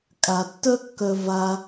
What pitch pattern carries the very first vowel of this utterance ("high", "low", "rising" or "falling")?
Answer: low